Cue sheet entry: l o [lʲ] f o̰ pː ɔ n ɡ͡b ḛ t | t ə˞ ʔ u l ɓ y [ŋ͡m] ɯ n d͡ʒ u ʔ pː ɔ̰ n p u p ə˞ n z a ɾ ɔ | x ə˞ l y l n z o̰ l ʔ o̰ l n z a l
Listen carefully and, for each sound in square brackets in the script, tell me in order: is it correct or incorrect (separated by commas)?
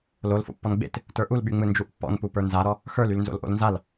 incorrect, correct